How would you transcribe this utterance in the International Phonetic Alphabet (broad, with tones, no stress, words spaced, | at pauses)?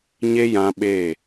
ɲe˦jã˧ ɓe˦˨